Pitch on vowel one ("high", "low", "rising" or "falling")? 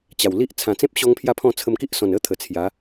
low